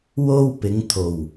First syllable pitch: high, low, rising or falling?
high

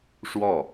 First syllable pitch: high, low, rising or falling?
falling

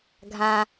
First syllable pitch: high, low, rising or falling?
low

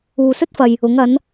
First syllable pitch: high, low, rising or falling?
low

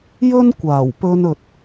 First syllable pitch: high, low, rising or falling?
high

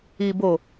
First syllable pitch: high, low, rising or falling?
low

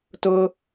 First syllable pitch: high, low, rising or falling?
high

